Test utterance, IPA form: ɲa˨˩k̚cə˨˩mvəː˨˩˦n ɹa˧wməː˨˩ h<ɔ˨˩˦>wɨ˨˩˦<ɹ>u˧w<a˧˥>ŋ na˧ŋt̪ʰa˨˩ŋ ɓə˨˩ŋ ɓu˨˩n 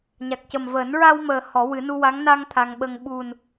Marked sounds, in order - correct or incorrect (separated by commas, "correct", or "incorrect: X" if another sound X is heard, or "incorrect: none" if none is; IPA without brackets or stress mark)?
correct, incorrect: n, correct